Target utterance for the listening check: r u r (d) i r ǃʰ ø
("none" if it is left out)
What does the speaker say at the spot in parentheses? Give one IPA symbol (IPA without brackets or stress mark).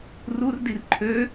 d